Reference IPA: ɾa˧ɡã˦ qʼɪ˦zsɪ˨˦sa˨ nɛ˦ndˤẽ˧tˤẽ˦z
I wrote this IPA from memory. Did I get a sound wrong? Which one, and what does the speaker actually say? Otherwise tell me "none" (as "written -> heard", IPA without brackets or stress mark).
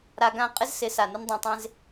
ɛ˦ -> ɪ˦